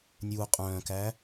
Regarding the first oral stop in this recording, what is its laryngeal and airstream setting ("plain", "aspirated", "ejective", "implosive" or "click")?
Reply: ejective